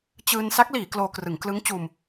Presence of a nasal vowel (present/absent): absent